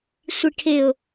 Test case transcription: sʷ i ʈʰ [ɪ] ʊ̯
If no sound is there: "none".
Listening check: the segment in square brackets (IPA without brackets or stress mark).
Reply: ɪ